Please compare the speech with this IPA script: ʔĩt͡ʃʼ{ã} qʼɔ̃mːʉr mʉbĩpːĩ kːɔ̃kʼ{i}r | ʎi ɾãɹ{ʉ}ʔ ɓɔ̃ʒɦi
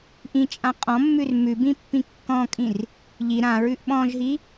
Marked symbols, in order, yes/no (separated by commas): yes, no, yes